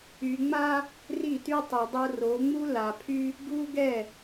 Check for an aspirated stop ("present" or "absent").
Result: present